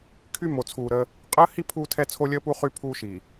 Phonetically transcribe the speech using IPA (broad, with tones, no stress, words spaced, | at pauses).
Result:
kʰy˦mo˨t͡sʰuː˨ɾəː˦ | qʼəː˦hi˦ pʰuː˦tʰɛ˦ t͡sʰo˦lʲəː˦pu˦ χy˦pʰuː˦ ʃiː˨